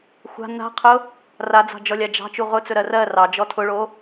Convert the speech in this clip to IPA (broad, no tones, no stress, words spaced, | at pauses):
xʷa̤ na̤qʰʊ | rad͡zɑ̤d͡ʒɔlʲa d͡ʒɑ̤t͡ʃu ʁʊt͡sɵɾɜ rɜ rɑd͡ʒɔ tʰʊɭo